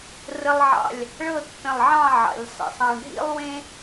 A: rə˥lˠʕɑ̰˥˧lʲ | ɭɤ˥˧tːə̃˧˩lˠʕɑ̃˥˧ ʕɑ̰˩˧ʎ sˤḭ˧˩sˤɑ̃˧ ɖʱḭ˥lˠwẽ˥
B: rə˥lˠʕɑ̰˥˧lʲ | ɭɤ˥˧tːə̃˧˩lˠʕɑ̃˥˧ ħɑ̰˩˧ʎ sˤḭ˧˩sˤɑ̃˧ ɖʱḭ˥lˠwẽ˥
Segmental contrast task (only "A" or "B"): A